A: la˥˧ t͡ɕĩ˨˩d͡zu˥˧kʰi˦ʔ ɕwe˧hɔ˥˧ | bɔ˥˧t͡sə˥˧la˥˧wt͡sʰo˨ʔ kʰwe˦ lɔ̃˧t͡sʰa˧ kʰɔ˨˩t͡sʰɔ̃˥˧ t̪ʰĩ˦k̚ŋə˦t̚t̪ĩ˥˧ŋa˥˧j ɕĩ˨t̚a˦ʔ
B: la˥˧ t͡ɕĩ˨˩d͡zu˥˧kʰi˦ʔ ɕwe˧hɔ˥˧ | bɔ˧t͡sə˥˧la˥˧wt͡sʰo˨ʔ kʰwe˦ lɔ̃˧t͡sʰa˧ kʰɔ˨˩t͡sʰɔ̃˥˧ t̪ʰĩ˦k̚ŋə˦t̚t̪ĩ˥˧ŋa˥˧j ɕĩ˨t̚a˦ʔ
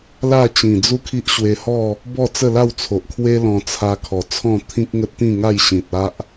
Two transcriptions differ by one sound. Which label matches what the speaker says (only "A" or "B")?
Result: A